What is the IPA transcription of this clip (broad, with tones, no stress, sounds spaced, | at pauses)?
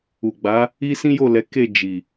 u˨ ɡ͡b a˨˦ | i˦ s ĩ˦ j o˦˨ l ɛ˨˦ k e˦˨ d͡ʒ i˨